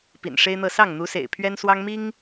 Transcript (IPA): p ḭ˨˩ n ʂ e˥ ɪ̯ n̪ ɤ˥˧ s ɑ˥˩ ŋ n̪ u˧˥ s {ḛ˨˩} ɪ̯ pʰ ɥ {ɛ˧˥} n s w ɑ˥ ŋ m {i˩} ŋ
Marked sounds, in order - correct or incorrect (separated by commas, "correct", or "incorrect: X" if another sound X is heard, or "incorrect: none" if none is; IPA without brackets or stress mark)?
correct, incorrect: ɛ˥, incorrect: i˥